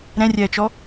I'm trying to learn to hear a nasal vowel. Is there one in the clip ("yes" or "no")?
yes